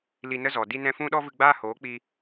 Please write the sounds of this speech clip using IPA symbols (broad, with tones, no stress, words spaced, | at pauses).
li˧nə˦zɔ˨ di˧nɛ̃˧fũ˦ɗɔ˦ vɨ˧ɡ͡baː˦hoː˨˦k͡pi˧